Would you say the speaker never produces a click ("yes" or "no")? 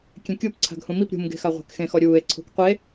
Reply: no